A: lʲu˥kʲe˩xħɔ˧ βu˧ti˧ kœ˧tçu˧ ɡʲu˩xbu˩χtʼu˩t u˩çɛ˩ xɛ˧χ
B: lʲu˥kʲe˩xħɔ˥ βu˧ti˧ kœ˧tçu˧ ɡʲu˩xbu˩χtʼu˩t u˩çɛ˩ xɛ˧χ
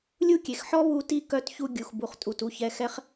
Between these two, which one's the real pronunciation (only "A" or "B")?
B